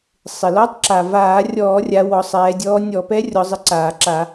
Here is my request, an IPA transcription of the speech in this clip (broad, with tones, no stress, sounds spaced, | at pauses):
sˤ ɪ˩ l ɔ˧˥ tˤ ǁ a˩ v aː˧˩˧ rʲ ɔː˧˩˧ rʲ a˩˧ w ɔ˩˧ sˤ ɛː˩˧ dʲ ɔː˧˥ nʲ ɔ˧˩˧ p ɛ˧˥ rʲ ɔ˩˧ zˤ ɪ˩˥ ǀ aː˩ ǁ a˧˩˧